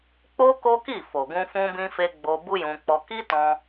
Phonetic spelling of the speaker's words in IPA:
k͡p o˦ k o˦ k i˦˨ f o˨ ɡ ũ˧ f ũ˦ b ĩ˦ f e˦ ɡ͡b o˧ b u˦ j ũ˧ k͡p ɔ˧ k i˦ t ɔ̃˧

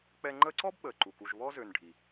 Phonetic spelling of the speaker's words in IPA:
k͡p ɛ˦ ŋ͡ǃ əː˦ ǀ ɔ˥ b ɓ əː˩ ǃ u˩ k u˨ ʒ β ɔ˥ z ø˨ n ɖʱ i˩

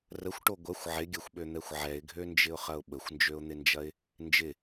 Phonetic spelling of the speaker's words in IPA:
r ə xʷ ʈ o ɡʷ ɐ xʷ ʕ ɪ ɡʲ ɐ xʷ ɓ ø n̪ ɛ xʷ ʕ ɛ ɪ̯ ɡʱ ø n d͡ʒ ɪ ʊ̯ χ ɐ ʊ̯ ɓ ə xʷ n d͡ʒ ø ʊ̯ n̪ ɪ n d͡ʒ ɐ ɪ̯ | n d͡ʒ ɪ

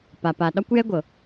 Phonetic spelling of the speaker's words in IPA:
p a˨ p a˨ ɗ ɒ˦ kʷ j ɛ˦ ɡʷ ɤ˨

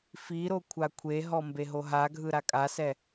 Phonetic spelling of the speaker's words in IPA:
f i ɾ o kʷʰ a kʷʰ e ɦ ɔ m b e ɦ o ɦ a ɡʱ ɯ ɾ a kʼ a s ɛ

